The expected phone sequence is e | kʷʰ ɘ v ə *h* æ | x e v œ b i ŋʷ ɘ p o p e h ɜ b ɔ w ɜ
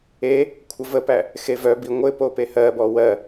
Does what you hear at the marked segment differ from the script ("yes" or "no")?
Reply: yes